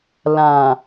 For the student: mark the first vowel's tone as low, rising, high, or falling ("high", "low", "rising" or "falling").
low